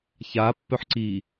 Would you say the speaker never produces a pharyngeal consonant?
no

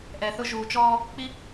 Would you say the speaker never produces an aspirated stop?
yes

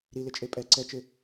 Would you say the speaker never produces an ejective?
no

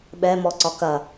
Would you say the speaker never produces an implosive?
no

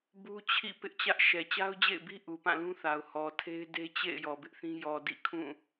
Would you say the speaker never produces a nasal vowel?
no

